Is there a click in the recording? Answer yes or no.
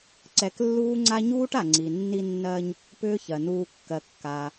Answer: yes